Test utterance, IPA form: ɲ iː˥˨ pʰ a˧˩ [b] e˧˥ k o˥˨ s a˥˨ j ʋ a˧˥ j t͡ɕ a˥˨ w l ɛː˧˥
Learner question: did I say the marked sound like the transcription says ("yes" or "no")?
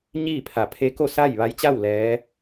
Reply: no